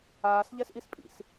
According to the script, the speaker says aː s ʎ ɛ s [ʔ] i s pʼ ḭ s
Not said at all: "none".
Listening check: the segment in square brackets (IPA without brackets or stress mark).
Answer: ʔ